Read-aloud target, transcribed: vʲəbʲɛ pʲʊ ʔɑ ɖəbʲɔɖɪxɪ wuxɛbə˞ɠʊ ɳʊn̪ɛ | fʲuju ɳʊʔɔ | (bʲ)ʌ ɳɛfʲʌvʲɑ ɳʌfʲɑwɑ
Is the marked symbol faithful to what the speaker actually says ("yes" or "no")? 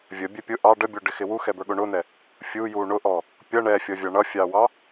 no